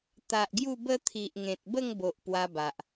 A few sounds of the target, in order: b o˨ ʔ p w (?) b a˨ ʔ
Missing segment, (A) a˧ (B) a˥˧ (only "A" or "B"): A